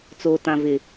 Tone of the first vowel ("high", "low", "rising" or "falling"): low